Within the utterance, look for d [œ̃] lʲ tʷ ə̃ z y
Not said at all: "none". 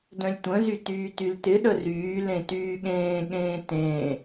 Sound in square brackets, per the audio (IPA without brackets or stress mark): œ̃